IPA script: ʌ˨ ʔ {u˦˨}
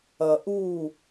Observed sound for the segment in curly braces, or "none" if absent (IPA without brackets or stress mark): u˦˨